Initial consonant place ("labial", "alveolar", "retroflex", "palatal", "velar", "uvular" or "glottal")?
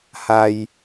glottal